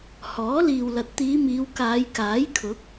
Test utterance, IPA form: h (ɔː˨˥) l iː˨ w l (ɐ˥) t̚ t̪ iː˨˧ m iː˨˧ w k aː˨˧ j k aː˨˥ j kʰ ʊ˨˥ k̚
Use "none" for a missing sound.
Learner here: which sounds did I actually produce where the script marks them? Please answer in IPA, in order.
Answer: ɔː˨˥, ɐ˨

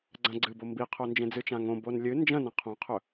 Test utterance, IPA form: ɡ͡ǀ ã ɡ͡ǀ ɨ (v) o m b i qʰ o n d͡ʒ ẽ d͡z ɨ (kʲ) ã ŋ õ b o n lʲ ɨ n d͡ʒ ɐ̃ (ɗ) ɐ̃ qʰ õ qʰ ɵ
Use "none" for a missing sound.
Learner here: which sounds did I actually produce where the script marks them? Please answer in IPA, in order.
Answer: b, t͡ʃ, n

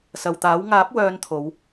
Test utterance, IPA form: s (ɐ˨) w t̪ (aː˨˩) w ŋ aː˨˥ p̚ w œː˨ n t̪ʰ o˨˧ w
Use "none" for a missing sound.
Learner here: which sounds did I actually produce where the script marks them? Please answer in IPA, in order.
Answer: ɐ˨, aː˨˥

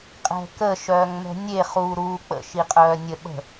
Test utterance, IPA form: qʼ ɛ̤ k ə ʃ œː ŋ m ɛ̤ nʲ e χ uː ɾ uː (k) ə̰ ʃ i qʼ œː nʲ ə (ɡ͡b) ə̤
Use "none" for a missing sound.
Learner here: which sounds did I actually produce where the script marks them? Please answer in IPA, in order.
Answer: k͡p, ɓ

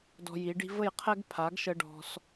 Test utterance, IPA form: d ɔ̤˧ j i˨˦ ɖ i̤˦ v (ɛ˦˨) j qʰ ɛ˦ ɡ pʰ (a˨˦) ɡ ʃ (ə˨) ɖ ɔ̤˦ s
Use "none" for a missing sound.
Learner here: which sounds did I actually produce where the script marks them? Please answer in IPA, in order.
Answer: ə˦˨, a˨˦, ə˦

